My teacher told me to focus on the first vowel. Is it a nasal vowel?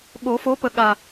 no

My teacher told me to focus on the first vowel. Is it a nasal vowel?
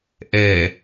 no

